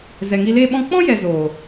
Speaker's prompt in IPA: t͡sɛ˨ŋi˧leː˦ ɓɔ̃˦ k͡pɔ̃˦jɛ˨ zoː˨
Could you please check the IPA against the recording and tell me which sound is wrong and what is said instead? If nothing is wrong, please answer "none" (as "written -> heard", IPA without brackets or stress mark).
t͡s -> z